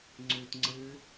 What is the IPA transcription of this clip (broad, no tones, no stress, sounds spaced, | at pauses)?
ŋ͡ǀ ʉː t ŋ͡ǀ ɨː